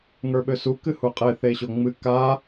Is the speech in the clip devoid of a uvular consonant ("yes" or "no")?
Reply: no